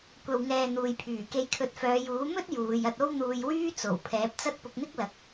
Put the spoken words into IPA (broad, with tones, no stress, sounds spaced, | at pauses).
kʷ ɐ˨ w ŋ ɛː˨ n̪ uː˨ j pʰ yː˨˩ k e˧ j kʰ ɵ˨˥ t̚ f œː˨˧ j uː˨˥ m ɵ˥ t̚ j uː˨˧ j ɐ˧ t̚ o˥ w n̪ uː˧ j w yː˥ t͡s o˨˩ w pʰ ɛː˨˥ p̚ t͡s ɐ˥ t̚ p ʊ˧ k̚ n̪ ɪ˥ k̚ l ɐ˨˥ k̚